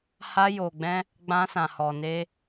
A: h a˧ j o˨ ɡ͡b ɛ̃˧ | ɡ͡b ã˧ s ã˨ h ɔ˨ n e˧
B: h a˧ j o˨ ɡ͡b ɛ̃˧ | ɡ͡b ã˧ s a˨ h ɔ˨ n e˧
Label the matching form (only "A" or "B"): A